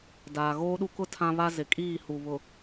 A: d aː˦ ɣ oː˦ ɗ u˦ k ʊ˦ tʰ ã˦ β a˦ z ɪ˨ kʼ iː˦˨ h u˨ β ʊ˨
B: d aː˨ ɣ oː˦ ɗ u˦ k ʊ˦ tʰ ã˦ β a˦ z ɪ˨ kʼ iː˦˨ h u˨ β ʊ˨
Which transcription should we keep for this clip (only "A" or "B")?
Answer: B